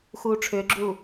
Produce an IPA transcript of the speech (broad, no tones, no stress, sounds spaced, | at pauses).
x uː ʈ͡ʂʰ ʏː ɡ͡ǁ uː